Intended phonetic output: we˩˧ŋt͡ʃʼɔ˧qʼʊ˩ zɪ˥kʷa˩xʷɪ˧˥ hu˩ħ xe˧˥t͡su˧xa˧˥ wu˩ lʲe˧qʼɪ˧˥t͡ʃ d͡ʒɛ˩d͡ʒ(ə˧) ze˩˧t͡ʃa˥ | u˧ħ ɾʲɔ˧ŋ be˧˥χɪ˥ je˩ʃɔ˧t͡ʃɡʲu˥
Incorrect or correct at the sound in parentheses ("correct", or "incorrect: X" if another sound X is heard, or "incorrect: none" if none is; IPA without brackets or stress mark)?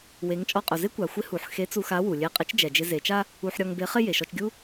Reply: incorrect: ɪ˧